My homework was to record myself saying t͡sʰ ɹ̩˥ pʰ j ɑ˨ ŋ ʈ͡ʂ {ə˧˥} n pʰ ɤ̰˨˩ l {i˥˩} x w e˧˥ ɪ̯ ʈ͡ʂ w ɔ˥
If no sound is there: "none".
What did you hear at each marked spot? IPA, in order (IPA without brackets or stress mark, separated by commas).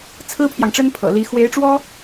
ə˥, i˧˥